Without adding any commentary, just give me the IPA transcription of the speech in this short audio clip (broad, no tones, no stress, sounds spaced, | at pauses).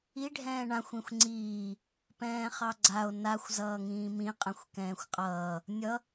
i ɖʱ ɛ̃ː ɳ ã xʷ ĩ xʷ ŋ͡ǀ iː | p ɛ̃ː χ ɑ ɡ͡ǀ a o̯ n a xʷ z ʌː ŋ ĩː m ĩ qʼ ɛ̃ xʷ k ɛ̃ː xʷ qʼ ʌː | nʲ ʌ